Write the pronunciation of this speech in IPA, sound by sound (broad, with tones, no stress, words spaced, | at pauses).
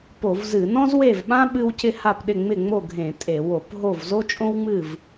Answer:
po˧˩˧vzɨ˧˩˧ nɔ̃˥zwe˥˩vɓã˥ ɓɨ˥wcɪ˥ ha˥˩pɗɪ˥˩ ŋ͡mɪ˥˩ŋ͡mo˥˩ ɡʱẽ˧˩˧ tʼe˧˩˧wo˧˩˧pɦo˥˩v zo˥t͡ʃʼõ˥wŋ͡mɨ˥˩v